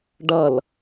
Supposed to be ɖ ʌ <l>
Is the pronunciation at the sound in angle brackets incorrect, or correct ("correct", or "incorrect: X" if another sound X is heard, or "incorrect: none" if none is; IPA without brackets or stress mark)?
correct